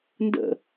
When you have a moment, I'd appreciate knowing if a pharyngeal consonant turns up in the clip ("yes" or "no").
no